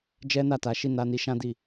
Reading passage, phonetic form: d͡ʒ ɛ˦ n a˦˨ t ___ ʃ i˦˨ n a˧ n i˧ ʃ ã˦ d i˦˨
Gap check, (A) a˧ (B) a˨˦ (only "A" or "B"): B